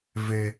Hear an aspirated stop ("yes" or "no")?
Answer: no